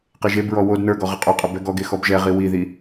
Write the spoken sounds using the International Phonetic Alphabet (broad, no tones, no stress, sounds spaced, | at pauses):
q e ʒ e b ɹ ɔ w o d n ə˞ ɡ ɔ ʁ ə qʼ œ qʼ ə b ɛ ɡ ɔ ɡ e x ɔ b ʒ ɛ ʁ i w i ð i